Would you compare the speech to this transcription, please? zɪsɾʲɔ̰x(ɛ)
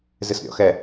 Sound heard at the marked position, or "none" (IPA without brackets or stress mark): ɛ